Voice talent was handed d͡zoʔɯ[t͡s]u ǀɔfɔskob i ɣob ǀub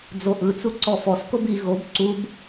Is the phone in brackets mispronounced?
no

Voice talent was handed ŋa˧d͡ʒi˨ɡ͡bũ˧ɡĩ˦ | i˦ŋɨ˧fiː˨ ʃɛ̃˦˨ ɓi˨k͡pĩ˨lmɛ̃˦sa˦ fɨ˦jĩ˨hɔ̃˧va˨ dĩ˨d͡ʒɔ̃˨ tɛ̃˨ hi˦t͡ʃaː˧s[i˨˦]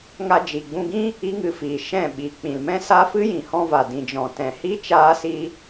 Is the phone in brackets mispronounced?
yes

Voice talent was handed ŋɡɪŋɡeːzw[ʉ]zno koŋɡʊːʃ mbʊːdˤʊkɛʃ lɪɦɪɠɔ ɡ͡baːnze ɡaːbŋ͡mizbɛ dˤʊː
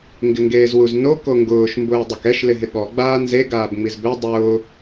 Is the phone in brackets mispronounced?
yes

